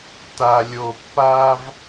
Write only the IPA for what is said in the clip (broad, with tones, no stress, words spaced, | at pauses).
ta˨lʲo˨pːa˦v